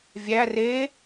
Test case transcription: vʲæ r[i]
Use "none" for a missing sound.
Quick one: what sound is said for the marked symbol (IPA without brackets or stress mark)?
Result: e